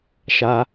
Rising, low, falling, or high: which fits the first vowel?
high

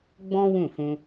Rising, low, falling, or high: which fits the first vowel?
high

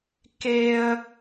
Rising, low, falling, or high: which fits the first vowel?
high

